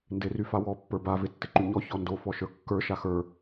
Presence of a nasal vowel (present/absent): absent